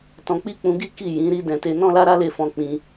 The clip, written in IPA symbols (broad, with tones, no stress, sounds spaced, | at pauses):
t ɔ̃˧ k͡p i˦ k͡p ũ˧ ɡ i˦ k i˦˨ j ĩ˨˦ ɾ i˦ d ɛ̃˧ t e˧ n ɔ̃˦ l a˦ ɾ a˦ l e˦˨ f ɔ̃˧ k͡p ĩ˧